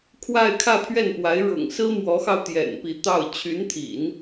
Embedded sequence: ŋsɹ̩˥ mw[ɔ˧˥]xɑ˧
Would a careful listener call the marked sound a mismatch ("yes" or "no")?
no